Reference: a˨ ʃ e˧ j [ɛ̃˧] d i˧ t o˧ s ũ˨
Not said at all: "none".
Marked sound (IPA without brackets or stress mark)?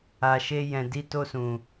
ɛ̃˨